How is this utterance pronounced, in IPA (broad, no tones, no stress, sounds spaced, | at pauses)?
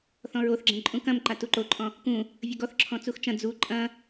θ ɔ̃ ɹ o θ ɡ͡ǁ ɐ̃ ǃʼ ũ k ɐ̃ m ǃ a t u ǃ o ǃʼ ɔ̃ | k ũ | vʲ ə ɡ ɔ θ ǁʰ ɔ̃ t͡s u x t͡ʃ ɐ̃ d͡z u ǃʼ ɐ̃